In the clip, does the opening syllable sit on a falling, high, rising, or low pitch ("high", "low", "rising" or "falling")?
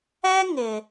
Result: high